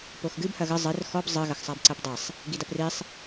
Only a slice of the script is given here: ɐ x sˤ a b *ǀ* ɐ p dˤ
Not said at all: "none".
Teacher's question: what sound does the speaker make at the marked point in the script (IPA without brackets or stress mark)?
ǀ